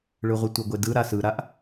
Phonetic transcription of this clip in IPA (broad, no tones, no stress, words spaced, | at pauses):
ɭɯʁʷɘtʷɘɡʷe dɯ ɾasɯɾaʔ